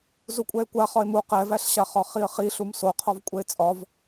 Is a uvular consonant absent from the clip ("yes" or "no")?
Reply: no